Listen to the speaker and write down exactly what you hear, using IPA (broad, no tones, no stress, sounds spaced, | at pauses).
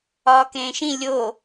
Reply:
ɒː k ẽː ʃ ĩ lʲ o